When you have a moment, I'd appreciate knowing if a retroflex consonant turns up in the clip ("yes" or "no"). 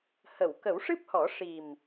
yes